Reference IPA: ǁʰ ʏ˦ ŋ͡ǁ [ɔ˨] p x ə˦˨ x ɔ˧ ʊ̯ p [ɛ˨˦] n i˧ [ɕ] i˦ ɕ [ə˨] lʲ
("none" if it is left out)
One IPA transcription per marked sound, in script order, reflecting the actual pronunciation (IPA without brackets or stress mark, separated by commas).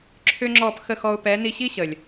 ɔ˦˨, ɛ˨˦, ɕ, ə˨